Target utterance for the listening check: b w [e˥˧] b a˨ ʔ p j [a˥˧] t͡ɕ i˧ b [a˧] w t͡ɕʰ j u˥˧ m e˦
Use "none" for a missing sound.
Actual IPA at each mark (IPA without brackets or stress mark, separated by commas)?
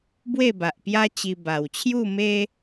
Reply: e˥˧, a˦, a˨˩